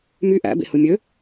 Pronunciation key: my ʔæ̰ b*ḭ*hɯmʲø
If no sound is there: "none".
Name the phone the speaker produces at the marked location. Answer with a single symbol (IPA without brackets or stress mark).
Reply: ḛ